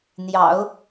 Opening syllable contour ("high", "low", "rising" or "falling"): low